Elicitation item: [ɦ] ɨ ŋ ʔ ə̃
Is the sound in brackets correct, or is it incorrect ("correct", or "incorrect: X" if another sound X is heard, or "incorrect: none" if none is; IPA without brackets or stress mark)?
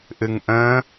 incorrect: ʔ